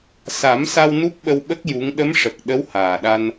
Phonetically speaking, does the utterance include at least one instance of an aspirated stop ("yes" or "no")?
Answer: no